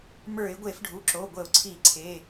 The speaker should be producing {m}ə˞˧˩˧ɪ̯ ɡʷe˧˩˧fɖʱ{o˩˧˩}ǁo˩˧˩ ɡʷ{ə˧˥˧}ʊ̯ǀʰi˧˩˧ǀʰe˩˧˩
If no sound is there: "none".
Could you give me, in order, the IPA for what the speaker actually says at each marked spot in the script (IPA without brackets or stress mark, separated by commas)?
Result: m, u˩˧˩, ə˧˩˧